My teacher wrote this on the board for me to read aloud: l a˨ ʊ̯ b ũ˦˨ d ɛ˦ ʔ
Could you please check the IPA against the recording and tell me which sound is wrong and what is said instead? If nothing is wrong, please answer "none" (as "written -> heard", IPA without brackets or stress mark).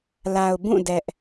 none